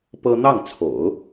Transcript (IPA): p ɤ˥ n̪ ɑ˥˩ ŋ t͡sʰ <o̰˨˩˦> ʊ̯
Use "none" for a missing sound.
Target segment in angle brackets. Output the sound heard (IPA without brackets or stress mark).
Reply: o̰˨˩˦